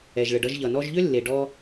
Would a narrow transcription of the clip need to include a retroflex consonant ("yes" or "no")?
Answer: yes